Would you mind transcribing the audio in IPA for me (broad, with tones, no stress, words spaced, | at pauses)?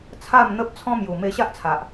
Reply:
t͡sʰa˥˧mn̪ə˦p̚ t͡sʰɔ̃˦mju˨˩ me˧ɕa˦ʔt͡sʰa˨ʔ